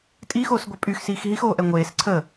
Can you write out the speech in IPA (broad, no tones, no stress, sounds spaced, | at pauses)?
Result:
tʼ i x oː s ɡʷ ə pʼ y x s iː x ɦ i x oː ʔ ɛ ŋʷ eː s ǀʰ ə